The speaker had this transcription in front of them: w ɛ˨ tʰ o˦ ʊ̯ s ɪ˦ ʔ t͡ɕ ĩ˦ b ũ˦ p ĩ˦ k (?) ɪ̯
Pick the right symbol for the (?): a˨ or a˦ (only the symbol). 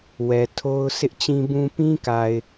a˨